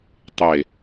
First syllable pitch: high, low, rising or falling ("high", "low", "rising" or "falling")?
low